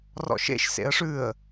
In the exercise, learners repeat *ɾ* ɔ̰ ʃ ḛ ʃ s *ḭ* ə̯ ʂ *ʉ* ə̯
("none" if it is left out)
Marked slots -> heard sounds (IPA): r, ḛ, ʉ

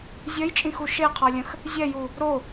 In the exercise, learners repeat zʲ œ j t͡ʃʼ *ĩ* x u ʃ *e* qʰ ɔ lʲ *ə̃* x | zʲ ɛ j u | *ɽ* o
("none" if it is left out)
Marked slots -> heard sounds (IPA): ĩ, e, ə̃, ɾ

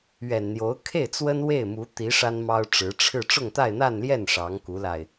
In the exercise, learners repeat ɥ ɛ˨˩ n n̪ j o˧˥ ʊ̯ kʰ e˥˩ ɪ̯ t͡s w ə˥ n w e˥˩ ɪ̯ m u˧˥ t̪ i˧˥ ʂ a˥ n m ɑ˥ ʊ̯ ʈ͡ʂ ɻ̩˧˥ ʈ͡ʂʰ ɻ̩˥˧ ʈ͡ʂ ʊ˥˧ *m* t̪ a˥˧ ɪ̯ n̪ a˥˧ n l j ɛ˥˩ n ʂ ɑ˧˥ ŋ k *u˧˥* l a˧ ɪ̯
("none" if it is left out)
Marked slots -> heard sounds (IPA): ŋ, u˧˥

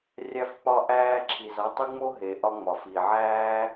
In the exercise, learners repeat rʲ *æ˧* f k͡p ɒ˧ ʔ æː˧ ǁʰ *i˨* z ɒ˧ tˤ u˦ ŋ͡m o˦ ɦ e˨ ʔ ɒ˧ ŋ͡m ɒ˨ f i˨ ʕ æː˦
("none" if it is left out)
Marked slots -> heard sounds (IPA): æ˧, i˨

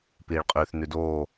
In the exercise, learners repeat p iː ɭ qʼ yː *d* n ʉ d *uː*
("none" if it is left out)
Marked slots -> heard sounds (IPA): θ, oː

